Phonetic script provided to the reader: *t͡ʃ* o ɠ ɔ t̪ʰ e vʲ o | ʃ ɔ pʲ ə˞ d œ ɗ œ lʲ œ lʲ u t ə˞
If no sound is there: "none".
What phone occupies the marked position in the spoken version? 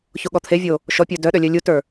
ç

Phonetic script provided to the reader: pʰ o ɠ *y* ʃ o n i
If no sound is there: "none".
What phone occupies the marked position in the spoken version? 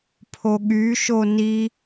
y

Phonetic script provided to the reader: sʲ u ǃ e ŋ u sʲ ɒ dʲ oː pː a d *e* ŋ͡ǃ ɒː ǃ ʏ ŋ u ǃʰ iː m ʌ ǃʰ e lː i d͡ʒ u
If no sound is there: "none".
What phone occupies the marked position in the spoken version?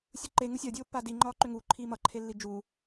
i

